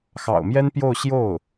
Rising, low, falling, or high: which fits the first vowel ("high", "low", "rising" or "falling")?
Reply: low